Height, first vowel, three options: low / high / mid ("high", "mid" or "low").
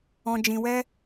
mid